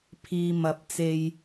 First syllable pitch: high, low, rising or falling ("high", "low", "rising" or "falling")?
low